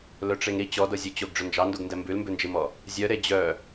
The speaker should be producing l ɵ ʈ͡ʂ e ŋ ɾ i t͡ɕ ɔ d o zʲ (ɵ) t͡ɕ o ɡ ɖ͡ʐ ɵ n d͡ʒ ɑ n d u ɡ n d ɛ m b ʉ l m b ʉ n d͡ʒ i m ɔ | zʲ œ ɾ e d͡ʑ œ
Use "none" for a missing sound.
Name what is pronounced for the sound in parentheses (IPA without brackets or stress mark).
ɵ